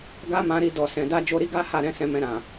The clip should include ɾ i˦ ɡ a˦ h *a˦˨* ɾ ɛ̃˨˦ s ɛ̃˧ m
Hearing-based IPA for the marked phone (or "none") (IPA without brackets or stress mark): a˦˨